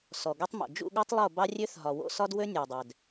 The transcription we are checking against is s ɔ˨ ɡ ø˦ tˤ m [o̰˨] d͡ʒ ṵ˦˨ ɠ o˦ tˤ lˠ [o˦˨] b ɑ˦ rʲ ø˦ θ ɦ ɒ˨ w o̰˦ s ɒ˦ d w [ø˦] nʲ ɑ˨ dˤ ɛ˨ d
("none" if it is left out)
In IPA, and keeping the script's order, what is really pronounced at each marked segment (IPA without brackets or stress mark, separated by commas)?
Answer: o̰˨, o˦˨, ø˦